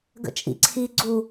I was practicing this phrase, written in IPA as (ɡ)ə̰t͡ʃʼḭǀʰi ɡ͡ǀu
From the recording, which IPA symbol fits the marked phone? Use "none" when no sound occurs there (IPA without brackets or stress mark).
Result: ɡ